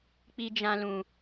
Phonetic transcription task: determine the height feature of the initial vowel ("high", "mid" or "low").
high